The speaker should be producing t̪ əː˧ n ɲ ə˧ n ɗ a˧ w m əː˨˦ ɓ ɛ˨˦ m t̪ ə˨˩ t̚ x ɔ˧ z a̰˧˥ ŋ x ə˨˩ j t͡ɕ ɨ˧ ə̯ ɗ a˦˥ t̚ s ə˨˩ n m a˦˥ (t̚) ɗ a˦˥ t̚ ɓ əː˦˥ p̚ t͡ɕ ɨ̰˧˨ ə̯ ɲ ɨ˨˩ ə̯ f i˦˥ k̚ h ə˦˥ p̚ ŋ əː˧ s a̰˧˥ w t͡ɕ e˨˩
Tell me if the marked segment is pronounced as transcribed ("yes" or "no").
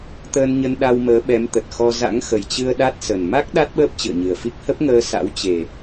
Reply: no